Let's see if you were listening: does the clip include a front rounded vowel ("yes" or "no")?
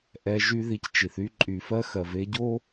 yes